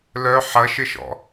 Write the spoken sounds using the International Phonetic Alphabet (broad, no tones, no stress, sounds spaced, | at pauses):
l œ ħ ɐ ʃ ɪ ʃ ɔ̰